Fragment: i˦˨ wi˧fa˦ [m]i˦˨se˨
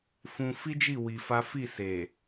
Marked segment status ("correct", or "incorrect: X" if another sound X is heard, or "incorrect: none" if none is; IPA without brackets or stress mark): incorrect: f